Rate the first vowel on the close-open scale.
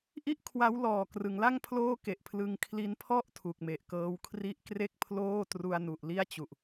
close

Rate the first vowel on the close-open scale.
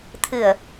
close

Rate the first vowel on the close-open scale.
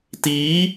close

